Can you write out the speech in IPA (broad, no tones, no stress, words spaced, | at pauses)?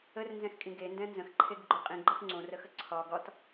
ərnzɛ̃xkʼĩ ɡendɛ̃ nzə̃xǃʰeɡɡ͡ǃo qʼĩɡ͡ǃɯx ŋ͡ǀõrəxə ǀʰɒ ɡɒt